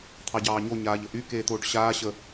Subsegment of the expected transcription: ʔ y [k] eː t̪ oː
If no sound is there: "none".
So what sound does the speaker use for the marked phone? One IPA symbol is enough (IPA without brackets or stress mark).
k